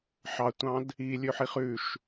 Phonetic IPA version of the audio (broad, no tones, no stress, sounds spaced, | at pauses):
ħ ɑ tʷ ɑ̃ d | i lʲ ɵ ħ i χ ʉ ʃ